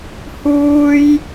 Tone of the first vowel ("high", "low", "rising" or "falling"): high